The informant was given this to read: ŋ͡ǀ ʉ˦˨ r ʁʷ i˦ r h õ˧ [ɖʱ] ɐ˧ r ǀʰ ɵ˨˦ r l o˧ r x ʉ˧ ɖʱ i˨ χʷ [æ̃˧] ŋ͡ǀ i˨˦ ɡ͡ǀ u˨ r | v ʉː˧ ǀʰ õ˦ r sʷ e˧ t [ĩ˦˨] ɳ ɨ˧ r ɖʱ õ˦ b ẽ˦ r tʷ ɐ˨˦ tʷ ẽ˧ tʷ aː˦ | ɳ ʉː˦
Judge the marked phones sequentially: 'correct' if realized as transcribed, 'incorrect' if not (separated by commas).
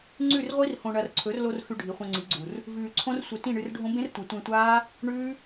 incorrect, incorrect, correct